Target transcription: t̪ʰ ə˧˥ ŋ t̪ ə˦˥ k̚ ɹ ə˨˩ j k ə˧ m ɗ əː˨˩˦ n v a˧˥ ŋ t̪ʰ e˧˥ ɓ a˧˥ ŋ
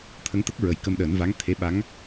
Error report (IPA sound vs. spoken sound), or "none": none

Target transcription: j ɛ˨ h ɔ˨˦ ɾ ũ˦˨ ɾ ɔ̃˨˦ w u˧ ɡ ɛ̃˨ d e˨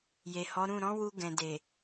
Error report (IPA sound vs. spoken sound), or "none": ɛ˨ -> e˨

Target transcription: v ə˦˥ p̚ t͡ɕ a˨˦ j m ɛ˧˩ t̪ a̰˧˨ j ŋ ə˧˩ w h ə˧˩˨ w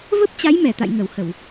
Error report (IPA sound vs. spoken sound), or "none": none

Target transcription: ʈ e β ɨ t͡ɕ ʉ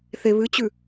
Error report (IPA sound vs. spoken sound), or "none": ʈ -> θ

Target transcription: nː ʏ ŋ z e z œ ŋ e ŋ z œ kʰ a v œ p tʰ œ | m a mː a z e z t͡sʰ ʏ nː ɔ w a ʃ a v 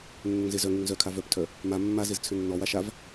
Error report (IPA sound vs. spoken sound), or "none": none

